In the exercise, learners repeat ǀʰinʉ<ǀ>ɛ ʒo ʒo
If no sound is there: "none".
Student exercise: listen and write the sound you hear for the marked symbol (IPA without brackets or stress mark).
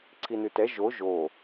t